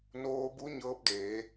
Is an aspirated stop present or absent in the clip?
absent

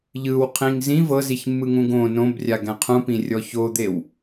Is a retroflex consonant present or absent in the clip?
absent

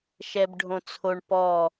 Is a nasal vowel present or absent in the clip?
present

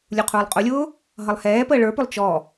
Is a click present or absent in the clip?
absent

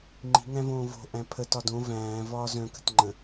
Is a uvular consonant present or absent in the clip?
absent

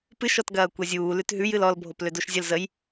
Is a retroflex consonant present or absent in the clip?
absent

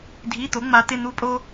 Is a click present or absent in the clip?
absent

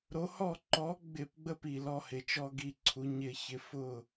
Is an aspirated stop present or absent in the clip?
present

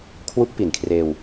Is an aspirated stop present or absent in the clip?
present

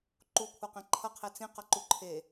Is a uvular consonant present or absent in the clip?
present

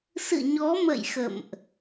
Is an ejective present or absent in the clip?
absent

